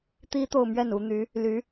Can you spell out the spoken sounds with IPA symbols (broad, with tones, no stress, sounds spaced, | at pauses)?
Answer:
t̪ i˥ t̪ o˥˧ ʊ̯ m ɥ ɛ˥˩ n u˧˥ n̪ y˧˥ | l y˧˥